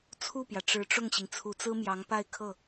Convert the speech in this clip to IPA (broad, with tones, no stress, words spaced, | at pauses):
t͡sʰu˥˩pjä˩ ʈ͡ʂɻ̩˧˥ʈ͡ʂʊ˥˩ŋɕi˩ŋ t͡sʰu˧˥t͡sɹ̩˥mjɑ˧˥ŋ pa˥˧ɪ̯kʰɤ˥˩